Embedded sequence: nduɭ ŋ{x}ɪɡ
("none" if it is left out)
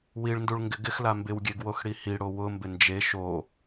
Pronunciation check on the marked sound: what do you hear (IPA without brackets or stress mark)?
ɡ